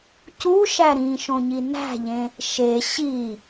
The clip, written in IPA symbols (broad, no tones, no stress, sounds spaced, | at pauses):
c u ʃ æ ɾ ĩ ʃ õ ɲ i n æ̤ ʎ ẽ | ʃ e ɕ i